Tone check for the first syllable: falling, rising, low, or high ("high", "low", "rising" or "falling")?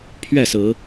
falling